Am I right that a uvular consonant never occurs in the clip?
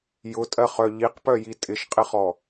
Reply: no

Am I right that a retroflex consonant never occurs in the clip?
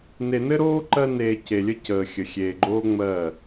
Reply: yes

